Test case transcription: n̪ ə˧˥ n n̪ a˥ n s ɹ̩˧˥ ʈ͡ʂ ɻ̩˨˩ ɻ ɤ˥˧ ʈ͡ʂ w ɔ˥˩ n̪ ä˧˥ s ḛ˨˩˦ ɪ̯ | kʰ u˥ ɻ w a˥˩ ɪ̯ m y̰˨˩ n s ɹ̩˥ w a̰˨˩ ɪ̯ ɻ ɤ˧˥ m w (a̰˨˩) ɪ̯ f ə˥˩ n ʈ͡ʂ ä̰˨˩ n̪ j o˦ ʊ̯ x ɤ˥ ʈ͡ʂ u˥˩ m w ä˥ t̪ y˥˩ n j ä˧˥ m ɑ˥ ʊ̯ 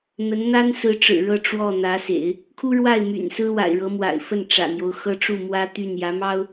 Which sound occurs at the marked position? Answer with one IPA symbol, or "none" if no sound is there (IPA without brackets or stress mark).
a̰˨˩